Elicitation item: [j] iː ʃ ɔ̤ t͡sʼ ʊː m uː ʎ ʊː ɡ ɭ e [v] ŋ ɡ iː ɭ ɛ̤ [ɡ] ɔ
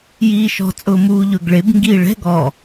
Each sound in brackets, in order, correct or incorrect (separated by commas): correct, incorrect, correct